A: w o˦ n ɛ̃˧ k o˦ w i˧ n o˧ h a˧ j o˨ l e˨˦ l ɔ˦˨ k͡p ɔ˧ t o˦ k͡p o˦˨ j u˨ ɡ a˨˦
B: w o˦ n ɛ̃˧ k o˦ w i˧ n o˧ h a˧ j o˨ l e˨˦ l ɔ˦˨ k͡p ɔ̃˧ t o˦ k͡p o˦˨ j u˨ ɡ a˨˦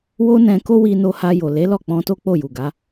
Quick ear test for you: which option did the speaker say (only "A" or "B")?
B